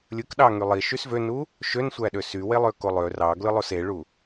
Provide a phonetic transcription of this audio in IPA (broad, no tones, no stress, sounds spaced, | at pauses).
lʲ ɯ k ɗ ɑ ŋ y lˠ i ʃ y s v ø n u | ʃ ø n sʷ æ ɗ ø s y w e lˠ ø k o lˠ ø r ɑ ɡ l ɯ lˠ o s e ɭ u